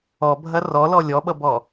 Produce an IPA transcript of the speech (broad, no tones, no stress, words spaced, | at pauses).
ɔbʱɐ rɔlɔ lʲɔɓʌbɔ